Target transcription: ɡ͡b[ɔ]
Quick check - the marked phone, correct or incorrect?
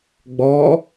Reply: correct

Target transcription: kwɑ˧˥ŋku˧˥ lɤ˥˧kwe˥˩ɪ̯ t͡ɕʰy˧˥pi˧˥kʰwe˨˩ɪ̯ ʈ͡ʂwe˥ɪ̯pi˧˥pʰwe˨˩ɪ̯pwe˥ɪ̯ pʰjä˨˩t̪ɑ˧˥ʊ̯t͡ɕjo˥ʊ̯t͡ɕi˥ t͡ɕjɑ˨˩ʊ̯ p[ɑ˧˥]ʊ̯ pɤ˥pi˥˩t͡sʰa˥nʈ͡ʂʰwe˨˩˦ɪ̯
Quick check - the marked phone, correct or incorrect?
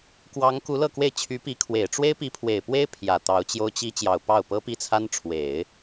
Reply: incorrect: ɑ˥˩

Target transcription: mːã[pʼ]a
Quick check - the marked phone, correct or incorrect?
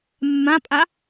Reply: correct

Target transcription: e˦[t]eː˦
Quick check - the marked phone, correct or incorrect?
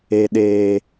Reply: incorrect: ɗ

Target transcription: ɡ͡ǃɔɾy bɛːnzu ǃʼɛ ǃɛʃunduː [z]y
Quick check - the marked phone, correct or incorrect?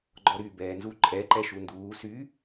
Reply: incorrect: s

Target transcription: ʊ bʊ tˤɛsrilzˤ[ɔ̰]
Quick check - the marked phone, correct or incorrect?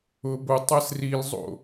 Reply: incorrect: o̰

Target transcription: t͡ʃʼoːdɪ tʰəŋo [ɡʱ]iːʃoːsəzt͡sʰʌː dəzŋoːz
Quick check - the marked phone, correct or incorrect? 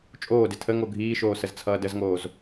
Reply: correct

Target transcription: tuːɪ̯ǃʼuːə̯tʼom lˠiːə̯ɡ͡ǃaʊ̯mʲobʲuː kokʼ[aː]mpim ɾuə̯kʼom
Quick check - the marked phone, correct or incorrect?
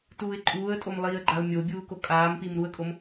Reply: correct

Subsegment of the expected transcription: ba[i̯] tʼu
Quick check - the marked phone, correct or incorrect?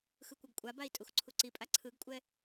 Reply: correct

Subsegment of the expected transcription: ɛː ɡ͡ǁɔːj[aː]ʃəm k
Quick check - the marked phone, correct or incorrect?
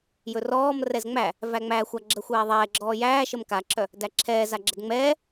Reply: incorrect: æː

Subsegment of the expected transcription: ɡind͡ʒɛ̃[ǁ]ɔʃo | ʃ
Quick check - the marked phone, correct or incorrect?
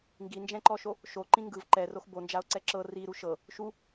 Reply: incorrect: ǃ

